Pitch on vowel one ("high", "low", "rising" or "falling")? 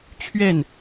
falling